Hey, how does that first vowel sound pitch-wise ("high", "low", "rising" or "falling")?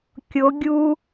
rising